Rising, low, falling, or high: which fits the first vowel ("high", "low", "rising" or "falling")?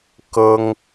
high